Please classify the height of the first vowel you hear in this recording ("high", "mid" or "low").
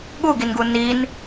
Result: high